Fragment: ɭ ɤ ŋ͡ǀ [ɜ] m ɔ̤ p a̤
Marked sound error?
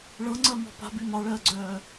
no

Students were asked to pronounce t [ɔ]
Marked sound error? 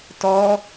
no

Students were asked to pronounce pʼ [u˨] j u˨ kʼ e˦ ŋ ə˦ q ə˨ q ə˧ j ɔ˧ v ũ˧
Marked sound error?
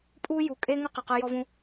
yes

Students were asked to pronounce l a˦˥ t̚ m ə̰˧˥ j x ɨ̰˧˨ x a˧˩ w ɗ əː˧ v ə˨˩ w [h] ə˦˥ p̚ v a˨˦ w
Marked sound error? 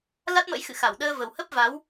no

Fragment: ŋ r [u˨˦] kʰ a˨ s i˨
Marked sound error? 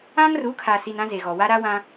no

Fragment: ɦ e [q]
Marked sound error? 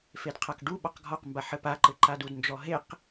no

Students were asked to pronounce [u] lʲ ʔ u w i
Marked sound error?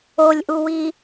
yes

